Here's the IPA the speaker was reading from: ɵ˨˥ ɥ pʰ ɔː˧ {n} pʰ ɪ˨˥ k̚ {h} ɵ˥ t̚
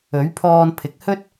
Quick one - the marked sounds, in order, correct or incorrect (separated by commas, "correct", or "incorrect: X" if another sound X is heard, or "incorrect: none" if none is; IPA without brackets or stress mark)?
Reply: correct, correct